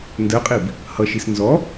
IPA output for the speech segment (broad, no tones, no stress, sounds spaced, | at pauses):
n d ɜ qʼ i b | h ʌ ʃ i s n z ɔ